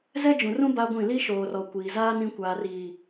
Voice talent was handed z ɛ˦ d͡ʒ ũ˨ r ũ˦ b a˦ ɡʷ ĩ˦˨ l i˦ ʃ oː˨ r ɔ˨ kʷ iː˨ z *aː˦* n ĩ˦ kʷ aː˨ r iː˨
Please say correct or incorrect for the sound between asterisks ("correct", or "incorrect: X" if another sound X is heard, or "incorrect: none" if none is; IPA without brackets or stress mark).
correct